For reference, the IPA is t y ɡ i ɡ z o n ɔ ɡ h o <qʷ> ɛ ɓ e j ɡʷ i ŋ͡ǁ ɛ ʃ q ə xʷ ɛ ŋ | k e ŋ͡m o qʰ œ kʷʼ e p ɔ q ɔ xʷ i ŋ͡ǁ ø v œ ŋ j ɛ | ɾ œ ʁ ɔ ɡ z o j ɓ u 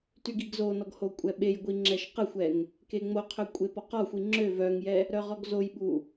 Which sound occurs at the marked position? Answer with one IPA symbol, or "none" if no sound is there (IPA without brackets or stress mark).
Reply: kʷʼ